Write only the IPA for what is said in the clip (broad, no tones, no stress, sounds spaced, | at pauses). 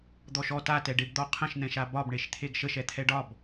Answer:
d̪ ɔ ʃ ɔ t a t ɛ ɖ e b d̪ ɔ qʰ ə̃ ʃ n̪ ɛ̃ ʃ a b ɒ b ɳ e ʃ t̪ʰ e ɡ ʃ ə ʃ ɛ t̪ʰ ɛ ɖ ɒ b